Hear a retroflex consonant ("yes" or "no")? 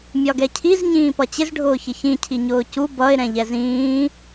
yes